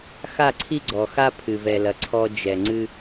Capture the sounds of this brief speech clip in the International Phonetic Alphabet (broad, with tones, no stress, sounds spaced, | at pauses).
x a˦˨ ǀʰ i˦ ɡ͡ǀ ɔ˨ x a˦ pʰ ɨ˨ v ɛ˨ l ɐ˨ ǀʰ ɔ˧ d͡ʒ ɛ˨ ŋ͡ǀ ɨ˦